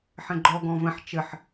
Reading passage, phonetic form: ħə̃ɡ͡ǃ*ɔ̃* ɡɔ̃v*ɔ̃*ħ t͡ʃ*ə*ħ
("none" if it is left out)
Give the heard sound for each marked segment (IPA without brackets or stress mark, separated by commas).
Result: ɔ, ə̃, ə